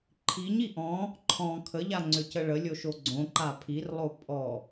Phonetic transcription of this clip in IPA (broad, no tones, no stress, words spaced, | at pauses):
ǃʰiɲi ʔɔ̃ | ǃʰɔ̃ kʰəʎa ŋ͡ǀʏcəɭəlʲo ʃoɡ͡ǀõǃa pʰirlˠo pʼɔ